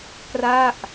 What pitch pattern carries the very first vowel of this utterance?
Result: falling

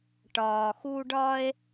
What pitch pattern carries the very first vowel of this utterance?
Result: low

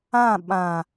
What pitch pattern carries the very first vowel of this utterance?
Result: falling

